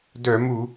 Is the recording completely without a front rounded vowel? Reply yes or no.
no